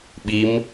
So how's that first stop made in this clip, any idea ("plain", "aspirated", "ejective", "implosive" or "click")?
implosive